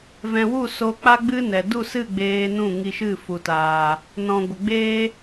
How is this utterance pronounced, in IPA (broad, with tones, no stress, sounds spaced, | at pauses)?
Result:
v ɛ̃˨ w u˦˨ s o˧ k͡p a˦ ɡ͡b ɨ˦ n ɛ˨ d u˦˨ s ɨ˦˨ ɡ͡b eː˨ n ũ˦˨ ŋ i˧ ʃ ɨ˦˨ f u˨ t aː˨ | n ɔ̃˨ ɡʷ ə˨ ɡ͡b eː˦